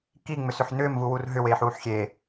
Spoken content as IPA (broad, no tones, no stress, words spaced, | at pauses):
kiŋ͡mʏs ʏħnʏːmvu wurɦʏ weːħuːħxʲeː